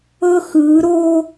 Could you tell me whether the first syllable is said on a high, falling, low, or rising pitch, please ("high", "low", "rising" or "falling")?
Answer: high